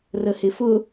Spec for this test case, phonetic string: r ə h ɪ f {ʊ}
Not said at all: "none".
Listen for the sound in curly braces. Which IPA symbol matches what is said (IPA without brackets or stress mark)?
ʊ